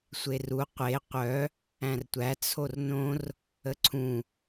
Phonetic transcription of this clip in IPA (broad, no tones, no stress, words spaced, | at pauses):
sʷeru qʷe qʷœ | æ̃rtʷæ t͡sʰornõr | əǀʰũ